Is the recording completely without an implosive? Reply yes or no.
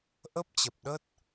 no